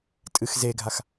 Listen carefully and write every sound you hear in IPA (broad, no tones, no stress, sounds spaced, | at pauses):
tʼ ɨ x z e ɡʱ a x